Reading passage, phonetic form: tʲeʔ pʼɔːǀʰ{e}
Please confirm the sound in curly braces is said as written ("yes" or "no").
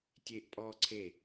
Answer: yes